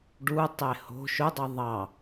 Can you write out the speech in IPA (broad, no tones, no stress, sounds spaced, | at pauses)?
ɖ u tˤ e h o̤ ʃ ʊ dˤ i ðˤ ɑ